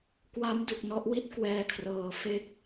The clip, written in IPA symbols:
kwa˦˥m du˨˩k̚nɔ˦˥ʔwi˥˩t̚ kwɛː˧kʰrɤː˨˩ fe˦˥k̚

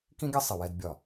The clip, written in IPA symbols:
kĩ˦ɡʲʌ˦ sˤɪ˨ wɛ˦dbʲɒ˦˨

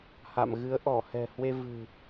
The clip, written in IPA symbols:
ha̰˧˨mɣɨ˨˦ə̯ ʔɔ˧˩hɛ̤˨˩hwe˧ vɨ̤˨˩

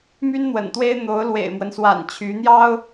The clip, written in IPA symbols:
my˥nn̪wə̰˨˩nt̪we˥ɪ̯ n̪o˧˥ʊ̯lwḛ˨˩ɪ̯mwə˦nswa̰˨˩n t͡ɕʰy˧˥n̪jɑ˥ʊ̯

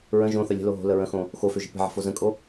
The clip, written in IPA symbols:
ɹə̃ ʒõθə lʲə̤lo ɦo̤lə ɹə̃xõ | xoføʒe̤ pə̤ʕə̤fo zə̃kʼo

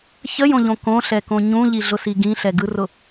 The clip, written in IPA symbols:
çəjõʎõ kõɬɛkõ ɲũʎiɮʊsi ɡĩɬɛɡɯrʊ

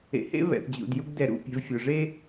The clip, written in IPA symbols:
ḛ˨hḛ˥ βɛ̰˩θd͡ʑṵ˩d ju˦ɡdɛ˨ɾṵ˨ pʲɛ̤˨vfʲo˩ ʐe˥

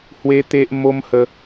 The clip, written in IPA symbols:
hwe˦t̪e˦ʔ mo˦mhə˧

